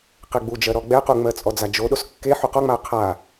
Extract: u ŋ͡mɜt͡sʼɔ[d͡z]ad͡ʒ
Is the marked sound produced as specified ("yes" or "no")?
yes